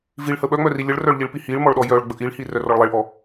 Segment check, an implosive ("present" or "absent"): present